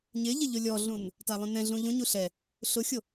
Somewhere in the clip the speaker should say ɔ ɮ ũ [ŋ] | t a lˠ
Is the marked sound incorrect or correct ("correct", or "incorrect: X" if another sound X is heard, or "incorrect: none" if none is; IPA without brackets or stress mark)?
incorrect: n